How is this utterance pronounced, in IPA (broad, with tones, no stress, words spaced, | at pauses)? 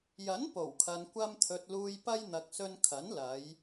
jɐ˨˥n po˨˩wkʰɐ˨nkʷɐ˧mt̪ʰɵ˨t̚ luː˨jpɐ˧j n̪ɐ˨k̚sɵ˧nkʰɐ˨˥n lɐ˨˧j